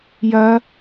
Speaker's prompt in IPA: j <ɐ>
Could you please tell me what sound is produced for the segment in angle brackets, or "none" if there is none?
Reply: ɐ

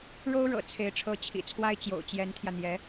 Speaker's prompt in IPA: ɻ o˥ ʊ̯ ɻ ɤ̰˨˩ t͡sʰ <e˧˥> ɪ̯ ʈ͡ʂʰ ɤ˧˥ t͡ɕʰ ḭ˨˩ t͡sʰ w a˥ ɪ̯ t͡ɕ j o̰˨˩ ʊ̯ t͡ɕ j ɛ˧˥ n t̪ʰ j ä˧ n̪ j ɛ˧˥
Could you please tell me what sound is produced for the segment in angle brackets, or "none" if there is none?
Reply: e˧˥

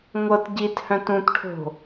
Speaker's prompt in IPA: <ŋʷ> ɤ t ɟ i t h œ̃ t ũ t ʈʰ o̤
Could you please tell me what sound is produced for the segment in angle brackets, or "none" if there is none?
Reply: ŋʷ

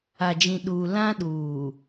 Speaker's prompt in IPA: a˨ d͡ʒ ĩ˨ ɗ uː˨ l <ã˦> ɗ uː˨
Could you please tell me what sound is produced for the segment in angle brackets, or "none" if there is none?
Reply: ã˦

